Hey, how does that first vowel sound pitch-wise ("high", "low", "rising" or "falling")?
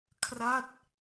falling